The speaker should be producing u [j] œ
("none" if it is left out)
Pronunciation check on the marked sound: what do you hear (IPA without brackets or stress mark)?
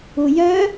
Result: j